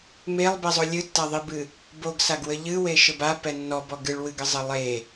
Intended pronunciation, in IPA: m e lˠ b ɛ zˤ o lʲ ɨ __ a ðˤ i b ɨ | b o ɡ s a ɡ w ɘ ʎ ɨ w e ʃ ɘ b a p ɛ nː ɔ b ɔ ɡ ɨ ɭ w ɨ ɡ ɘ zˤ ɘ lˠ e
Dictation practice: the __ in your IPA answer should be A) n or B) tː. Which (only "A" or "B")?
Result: B